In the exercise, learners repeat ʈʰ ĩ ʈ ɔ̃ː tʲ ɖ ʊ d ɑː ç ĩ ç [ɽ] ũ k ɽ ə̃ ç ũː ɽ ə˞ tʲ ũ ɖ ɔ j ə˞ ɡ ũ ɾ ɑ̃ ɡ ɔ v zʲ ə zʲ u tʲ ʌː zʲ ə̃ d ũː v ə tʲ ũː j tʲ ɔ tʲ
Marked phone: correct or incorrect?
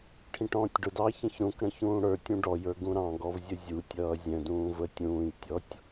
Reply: incorrect